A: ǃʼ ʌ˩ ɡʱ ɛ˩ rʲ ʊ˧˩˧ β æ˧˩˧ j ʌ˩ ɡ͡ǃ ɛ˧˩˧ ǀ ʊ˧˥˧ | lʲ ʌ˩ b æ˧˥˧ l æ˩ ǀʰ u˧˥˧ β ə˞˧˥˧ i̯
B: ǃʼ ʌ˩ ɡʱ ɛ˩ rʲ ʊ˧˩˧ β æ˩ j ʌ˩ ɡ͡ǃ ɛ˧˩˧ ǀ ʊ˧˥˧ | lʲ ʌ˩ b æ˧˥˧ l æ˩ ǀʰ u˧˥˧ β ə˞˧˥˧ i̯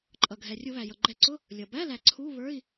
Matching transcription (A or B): B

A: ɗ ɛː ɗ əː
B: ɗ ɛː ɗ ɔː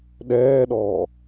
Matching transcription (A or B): B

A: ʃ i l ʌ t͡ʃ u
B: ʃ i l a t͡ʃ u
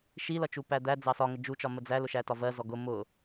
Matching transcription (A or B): A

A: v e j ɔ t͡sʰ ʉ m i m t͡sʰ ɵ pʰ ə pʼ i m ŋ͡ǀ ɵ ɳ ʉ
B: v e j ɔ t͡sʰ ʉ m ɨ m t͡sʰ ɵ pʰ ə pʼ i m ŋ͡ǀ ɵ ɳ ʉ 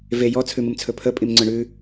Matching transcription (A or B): B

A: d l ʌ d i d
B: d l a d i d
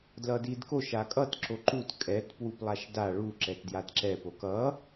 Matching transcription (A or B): A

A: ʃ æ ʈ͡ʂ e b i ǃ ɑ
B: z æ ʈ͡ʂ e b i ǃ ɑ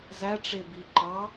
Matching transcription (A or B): B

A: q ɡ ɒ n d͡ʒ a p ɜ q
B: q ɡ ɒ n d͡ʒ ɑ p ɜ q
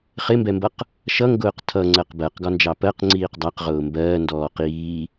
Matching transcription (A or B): B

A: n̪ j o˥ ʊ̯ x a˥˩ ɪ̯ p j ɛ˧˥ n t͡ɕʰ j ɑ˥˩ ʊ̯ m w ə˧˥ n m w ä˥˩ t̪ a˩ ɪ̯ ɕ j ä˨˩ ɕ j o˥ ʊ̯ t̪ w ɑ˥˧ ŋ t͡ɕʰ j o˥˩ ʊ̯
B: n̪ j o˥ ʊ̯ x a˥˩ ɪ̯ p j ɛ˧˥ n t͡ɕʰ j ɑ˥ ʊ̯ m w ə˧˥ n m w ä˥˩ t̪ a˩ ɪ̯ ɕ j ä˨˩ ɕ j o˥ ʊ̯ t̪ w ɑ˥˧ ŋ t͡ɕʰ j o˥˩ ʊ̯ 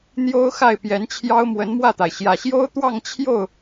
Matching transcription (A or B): B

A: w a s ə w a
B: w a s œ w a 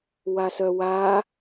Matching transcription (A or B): B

